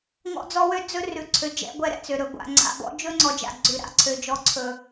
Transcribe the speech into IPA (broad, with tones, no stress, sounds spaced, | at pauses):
ŋ ɔ̰˦ d͡z ɔ˦ w ø˦ d͡z ɵ˦ r ʉ˨ ǀʰ ø˨ d͡ʒ ɛ̰˦ ɡʷ ɛ˦˨ ɾ ɛ̰˦ t͡s ø˨ ɾ ɵ˨ ɡʷ a̰˨ ŋ͡ǀ a̰˨ b ɔ̰˦ d͡ʒ ɵ˦ ŋ͡ǀ ɔ˨ d͡ʒ a̰˨ ɡ͡ǀ ʉ˨ ɾ a̰˨ ǀʰ ø˨ d͡ʒ ɔ˨ ǀʰ ɵ˨